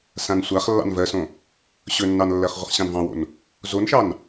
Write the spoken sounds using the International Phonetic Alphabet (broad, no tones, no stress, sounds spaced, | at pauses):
s ã n sʷ a χ lː ɑ̰ n v ɜ s õ | ɕ ɵ nː ɑ n lː ɜ χ ʁʷ ə χ ɕ ɑ̃ n v ɑ̃ w o̰ n | z o n ʃ ɑ n